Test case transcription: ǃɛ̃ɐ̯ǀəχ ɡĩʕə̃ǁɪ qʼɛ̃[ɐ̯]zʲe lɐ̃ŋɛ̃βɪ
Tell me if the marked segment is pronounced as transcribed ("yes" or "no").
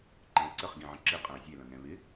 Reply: yes